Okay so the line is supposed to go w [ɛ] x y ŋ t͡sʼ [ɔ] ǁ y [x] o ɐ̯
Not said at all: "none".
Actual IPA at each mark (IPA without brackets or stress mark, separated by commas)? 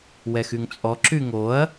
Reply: ɛ, ɔ, ŋ